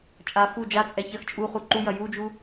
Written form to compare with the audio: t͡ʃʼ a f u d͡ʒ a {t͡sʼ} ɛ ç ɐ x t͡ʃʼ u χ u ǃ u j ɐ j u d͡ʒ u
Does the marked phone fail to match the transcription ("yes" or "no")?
no